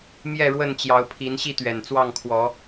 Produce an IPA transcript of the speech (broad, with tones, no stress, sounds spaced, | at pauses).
m j ɛ˥˨ ɻ w ə˥˨ n t͡ɕ j ɑ˨˦ ʊ̯ pʰ i˨˦ n ɕ i˥˨ t̪ ɥ ɛ˨˩ n t͡s w ɑ˥˨ ŋ kʰ w ɔ˨˦